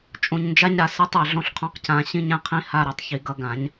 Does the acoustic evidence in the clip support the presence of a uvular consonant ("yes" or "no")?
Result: yes